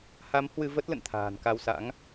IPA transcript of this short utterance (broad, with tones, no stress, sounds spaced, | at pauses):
h a˨˦ m h w ɨ˧ v ə˦˥ t̚ l ə̰˧˨ n t̪ʰ a̤ː˨˩ n k a˧ w s a̰˧˥ ŋ